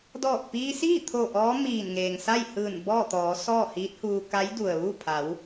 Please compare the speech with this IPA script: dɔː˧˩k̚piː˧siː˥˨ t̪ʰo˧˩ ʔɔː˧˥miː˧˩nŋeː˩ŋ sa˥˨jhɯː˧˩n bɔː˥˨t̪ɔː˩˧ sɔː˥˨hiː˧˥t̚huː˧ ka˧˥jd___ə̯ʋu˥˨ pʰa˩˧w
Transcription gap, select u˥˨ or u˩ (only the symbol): u˩